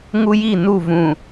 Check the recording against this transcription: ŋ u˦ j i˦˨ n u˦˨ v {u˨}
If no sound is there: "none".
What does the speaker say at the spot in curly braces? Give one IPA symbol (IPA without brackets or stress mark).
ũ˨